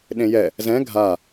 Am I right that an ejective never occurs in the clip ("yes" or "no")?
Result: yes